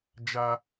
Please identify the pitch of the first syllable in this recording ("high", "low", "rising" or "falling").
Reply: high